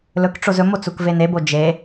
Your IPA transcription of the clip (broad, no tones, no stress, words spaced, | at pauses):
lɵkʈ͡ʂoz ɵmo t͡sukvenebo d͡ʒe